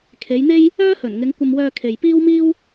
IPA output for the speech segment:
kʰ e˨˧ j n̪ e˥ j | œː˥ h ɵ˨˩ n ŋ ɪ˨˧ ŋ kʷ ɐ˧ m w œː˧ kʰ e˨ j p iː˥ w m iː˥ w

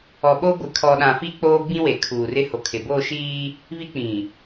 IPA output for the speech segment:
ɔ˨ ɓ o˦ ɡʷ ɪ˨ kʰ ɔ˨ ɗ ã˨ f i˦ k͡p oː˦ ɡ͡b ĩ˦ w e˨ kʰ uː˨ r ɪ˦ h o˨ kʰ ɪ˨ b o˦˨ ʃ iː˦ | β i˦ k͡p ĩ˨

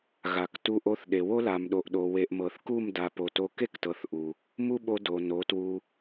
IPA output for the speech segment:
ɣ a˨ k t u˧ ʔ o˧ θ ɗ e˨ w o˦ l a˨ m ɗ o˨ ʔ ɗ o˨ w e˨ ʔ m ɤ˨ θ k u˦˨ m d a˨ p o˨ t o˧ k e˦ k t ɤ˨ θ ʔ u˨ | m u˦ ɓ o˧ d o˨ n o˨˦ t w u˧

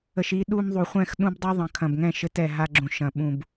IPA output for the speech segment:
ə˨ ʃ i˧ ɗ u˧ m ðˤ u˨ χʷ ɛ̃˦˨ x ɗ ũ˦ b dˤ u˦ ðˤ ɐ̃˨˦ kʰ ɐ̃˨ b ŋ ɛ̃˦˨ ʃ ɘ˧ t ɛ˨ ɦ a˧ ɡ͡ǁ ũ˨ ʃ ɐ̃˨ ɓ ũ˨ b

